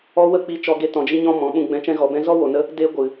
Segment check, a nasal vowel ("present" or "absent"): present